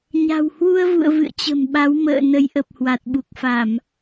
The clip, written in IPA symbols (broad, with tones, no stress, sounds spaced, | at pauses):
ɲ a̤˨˩ w h w u˧ ə̯ v ṵ˧˨ ə̯ v ɨ̰˧˨ ə̯ t͡ɕ ə̤˨˩ m ɓ a˨˦ w m ə̰ː˧˨ n ə˨˦ j ʔ ə˨˩ p̚ h w a˨˩ t̚ ɓ u˨˩ k̚ f a˧˩˨ m